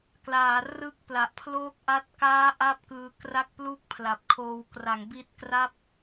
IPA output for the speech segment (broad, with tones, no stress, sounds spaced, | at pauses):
k l aː˩˦ r ɯ˦˥ k̚ p l a˨˩ ʔ pʰ l oː˦˥ k̚ ʔ a˦˥ t̚ k aː˦˥ ʔ a˥˩ p̚ k ɯː˧ k r a˥˩ k̚ p l u˥˩ k̚ pʰ l a˨˩ p̚ kʰ oː˧ w k r a˩˦ ŋ b i˦˥ t̚ k r a˥˩ p̚